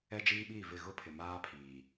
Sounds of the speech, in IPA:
ɛ˦ d͡ʒ iː˦ ɓ iː˦˨ v ɪ˦˨ ɣ ʊ˦ pʰ ɪ˨ m aː˦ pʰ iː˨

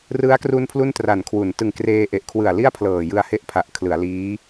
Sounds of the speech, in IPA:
r ɯ˦˥ a̯ k r u˧ n pʰ l u˥˩ n t r a˨˩ n kʰ w u˩˦ n t ɯ˨˩ ŋ k r eː˧ ʔ e˨˩ ʔ kʰ w ɯ˨˩ a̯ l i˥˩ a̯ pʰ l ɤː˨˩ j ɯ˧ a̯ h e˦˥ ʔ pʰ a˨˩ ʔ kʰ l ɯ˩˦ a̯ l iː˦˥

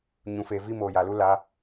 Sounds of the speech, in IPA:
ɲ ũ˨ f eː˨ v iː˦ m oː˨ j a˨ l u˦ l a˨˦

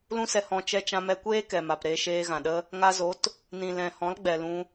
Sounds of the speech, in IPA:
l ũ˦ s ɛ˧ h ɔ̃˧ t͡ʃ ɛ˧ t͡ʃ ã˧ m ɛ˧ kʷ eː˦ k ɛ˨ m a˨ p ɾ eː˧ ʃ eː˧ ɣ ã˨ ɗ ə˦ | ŋ a˧ z o˨˦ t | n ĩ˨ l ɛ̃˨ h ɔ̃˨˦ l ɡ͡b ɛ˨ l ũ˧

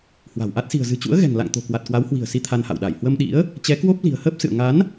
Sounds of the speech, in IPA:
h w a̤˨˩ w ʔ a˦˥ t̚ s i̤˨˩ ə̯ z ɨ̤˨˩ t͡ɕ ṵ˧˥ ə̯ ɣ ɛ̤˨˩ ŋ l a̰˧˨ ŋ t̪ o̤˨˩ k w a˨˩ t̚ k w a˨˦ w h w i̤˨˩ ə̯ s i˨˦ t̪ʰ a˧ n h a̰˧˨ w ɗ a˧˩ j h w ə˧ m ɗ ḭ˧˥ ə̯ | t͡ɕ ɛ˨˦ k w o˦˥ p̚ l i̤˨˩ ə̯ h əː˦˥ p̚ s ɨ̰˧˨ ə̯ ŋ a˨˦ n

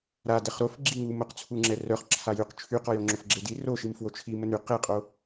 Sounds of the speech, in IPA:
ɾ a d ɛ χ ɾ o f ɡ͡ǁ i ŋ u m o q t͡sʰ u ŋ͡ǁ ɛ r œ χ ǁʰ a j y q t͡ʃʰ y q ɔ j o ŋ͡ǁ o f ɡ͡ǁ e d i r o ʃ i m f w o t͡ʃʰ i m ə n y q e qʼ o

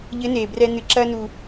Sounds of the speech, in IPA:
ʎ ɘ˧˥ n eː˩ b r ɛ˧ n ɨ˩ ǁ ɐː˧ n u˩

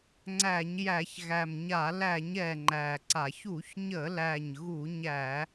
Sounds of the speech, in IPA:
ŋ͡ǀ æ˧˩˧ ɲ j æ˧˩˧ ç ɣ æ˨˩ m ɲ a˧˩˧ l æ˧˩˧ ɲ ɛ˨˩ ŋ͡ǃ æ˨˩ ǀ a˧˩˧ ç u˧˩˧ ç ɲ ə˧˩˧ l æ˨˩ ɲ ɣ u˧˩˧ ɲ æ˧˩˧

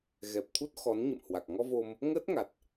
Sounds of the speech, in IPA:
ɣ ɛ˨˩ p̚ t̪ʰ u˦˥ t̚ x ɔ˨˦ n ɲ ə̰˧˨ m h w a˨˩ k̚ ŋ ɔ˧ v o˧ m | ŋ əː˦˥ t̚ ŋ a˨˩ t̚

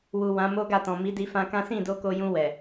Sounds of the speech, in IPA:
w u˨ w ã˨˦ m o˦ ɡ a˦˨ t ɔ̃˨ m i˨˦ d i˧ f ã˧ k ã˦ s ĩ˦˨ d o˧ k o˧ j ũ˧ w ɛ˨

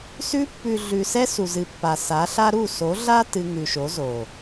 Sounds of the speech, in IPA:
s ʉ˧ pː ʉ˨ ɮ ʉ˨ s ɛ˦ s u˨ z ɨ˨ pː a˨ s a˨˦ ɬ a˦ ɾ u˦˨ s o˨˦ ɮ a˦ t ɨ˧ ŋ ʉ˨ ʃ o˨˦ z o˨

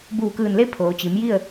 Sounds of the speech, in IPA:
b uː˧˩ k ɯː˧˩ n l e˥˨ pʰ oː˩˧ t͡ɕ i˩˧ m j i˥˨ ə̯

